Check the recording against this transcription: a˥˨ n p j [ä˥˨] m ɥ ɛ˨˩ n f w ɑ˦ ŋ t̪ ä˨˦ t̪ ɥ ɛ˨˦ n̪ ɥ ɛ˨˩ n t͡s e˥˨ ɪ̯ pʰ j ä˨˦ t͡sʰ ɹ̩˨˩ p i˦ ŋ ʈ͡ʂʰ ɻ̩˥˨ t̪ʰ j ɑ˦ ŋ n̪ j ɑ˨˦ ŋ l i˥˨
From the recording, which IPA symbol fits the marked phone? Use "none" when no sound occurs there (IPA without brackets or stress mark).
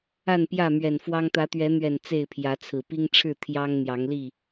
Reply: ä˥˨